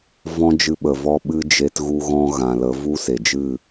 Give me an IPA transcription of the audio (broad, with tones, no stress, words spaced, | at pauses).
vɔ̃˦d͡ʒɨ˧ ɓə˨vɔ˦ɓɨ˦ d͡ʒe˧tɣu˧ɣɔ̃˧ ɣã˨lə˨˦vu˦ se˨d͡ʒɨ˦˨